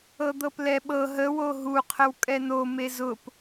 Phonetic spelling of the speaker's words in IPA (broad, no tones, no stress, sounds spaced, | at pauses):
ɤ d̪ ɤ p l ɛ ɓ ɤ ɦ ə w o ɦ u qʰ ə w kʼ ɛ n o m e z ʊ p